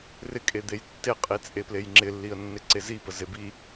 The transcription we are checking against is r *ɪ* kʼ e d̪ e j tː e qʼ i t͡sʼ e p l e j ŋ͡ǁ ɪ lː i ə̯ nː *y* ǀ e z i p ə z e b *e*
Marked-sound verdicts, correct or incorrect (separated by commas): correct, incorrect, incorrect